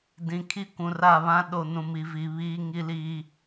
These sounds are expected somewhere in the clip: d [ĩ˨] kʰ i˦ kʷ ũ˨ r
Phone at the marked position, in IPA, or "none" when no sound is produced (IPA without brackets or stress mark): ĩ˨